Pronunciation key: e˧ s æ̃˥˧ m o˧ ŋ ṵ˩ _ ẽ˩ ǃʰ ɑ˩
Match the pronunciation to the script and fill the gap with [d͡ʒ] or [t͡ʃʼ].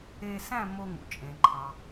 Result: t͡ʃʼ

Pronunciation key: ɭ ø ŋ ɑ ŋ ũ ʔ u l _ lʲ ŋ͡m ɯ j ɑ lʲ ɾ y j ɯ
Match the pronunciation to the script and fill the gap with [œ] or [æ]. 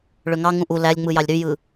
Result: æ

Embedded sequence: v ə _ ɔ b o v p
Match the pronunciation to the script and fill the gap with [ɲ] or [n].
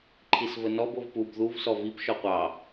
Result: n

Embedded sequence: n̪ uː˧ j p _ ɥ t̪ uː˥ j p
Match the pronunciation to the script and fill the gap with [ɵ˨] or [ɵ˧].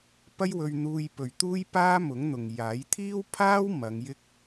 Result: ɵ˨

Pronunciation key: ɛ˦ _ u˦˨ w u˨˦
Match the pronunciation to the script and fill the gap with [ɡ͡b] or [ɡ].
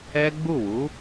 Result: ɡ͡b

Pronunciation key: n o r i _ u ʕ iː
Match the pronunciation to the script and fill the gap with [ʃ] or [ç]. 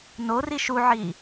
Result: ʃ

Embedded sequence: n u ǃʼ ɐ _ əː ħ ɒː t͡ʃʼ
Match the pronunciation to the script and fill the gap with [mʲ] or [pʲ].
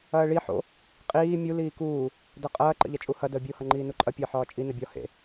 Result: pʲ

